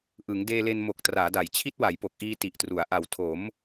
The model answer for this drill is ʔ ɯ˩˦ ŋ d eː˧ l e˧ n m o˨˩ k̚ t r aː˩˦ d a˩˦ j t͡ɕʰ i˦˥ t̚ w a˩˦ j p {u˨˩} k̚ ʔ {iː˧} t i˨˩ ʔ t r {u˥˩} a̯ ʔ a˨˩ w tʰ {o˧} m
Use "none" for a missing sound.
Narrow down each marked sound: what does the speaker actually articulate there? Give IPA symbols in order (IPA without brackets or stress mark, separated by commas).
o˨˩, iː˧, u˩˦, o˩˦